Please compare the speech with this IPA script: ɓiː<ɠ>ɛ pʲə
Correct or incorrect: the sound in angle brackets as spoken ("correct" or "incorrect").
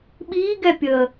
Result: incorrect